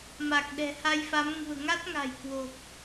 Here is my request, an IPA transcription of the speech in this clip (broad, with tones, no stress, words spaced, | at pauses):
ma˨˩k̚ɗɛ̤˨˩ha˧jfa˨˦m ŋṳ˨˩ə̯ŋa˦˥t̚ŋa̤˨˩jkwo˨˩k̚